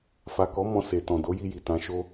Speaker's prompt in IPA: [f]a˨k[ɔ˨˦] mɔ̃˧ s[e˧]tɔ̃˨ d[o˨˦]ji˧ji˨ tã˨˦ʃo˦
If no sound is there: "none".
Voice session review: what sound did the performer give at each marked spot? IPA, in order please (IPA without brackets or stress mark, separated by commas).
f, ɔ˨˦, e˨, o˨˦